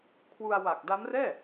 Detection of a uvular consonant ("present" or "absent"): absent